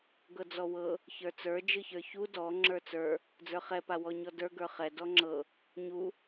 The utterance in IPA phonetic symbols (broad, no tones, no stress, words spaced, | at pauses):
ɡɤd͡zɔwɤ | çə˞t͡sə˞ d͡ʒɯçə˞çu dɔ ŋ͡ǁə˞t͡sə˞ | d͡zə˞χɛ pawɔɲɔdə˞ ɡə˞χɛ dɔŋ͡ǁɤ | ɲu